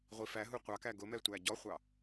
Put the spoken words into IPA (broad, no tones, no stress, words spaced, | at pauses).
ʁʷifæɦu qʷɑk æɡʊmɛ tʷæɟɔχʷɑ